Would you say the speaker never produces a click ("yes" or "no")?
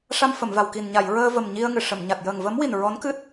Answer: yes